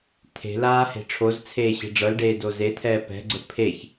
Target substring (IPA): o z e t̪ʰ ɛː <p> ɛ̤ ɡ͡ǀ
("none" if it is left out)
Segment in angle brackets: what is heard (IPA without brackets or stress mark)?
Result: p